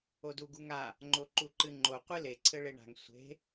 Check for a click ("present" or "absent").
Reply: present